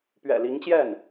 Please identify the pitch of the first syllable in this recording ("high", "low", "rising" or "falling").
low